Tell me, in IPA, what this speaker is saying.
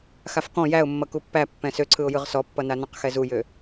x a f k ɔ̃ j æ ʊ̯ mː ʌ k u pː æ pː ɛ̃ s ø ǀʰ ɯ ʊ̯ j ɯ ʁ s ɔ pː ʌ n a n ɔ̃ q x ɛ z u j ø

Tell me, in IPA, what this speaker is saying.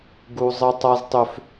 ɡ u˦ zˤ ə˦ tˤ a˦ z tˤ ʏ˦ f

